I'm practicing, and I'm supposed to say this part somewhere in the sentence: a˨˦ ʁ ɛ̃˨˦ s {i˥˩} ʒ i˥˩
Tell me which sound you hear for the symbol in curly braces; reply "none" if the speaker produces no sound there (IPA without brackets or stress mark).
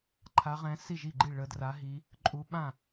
i˥˩